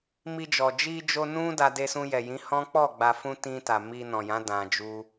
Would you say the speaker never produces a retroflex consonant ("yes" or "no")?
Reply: yes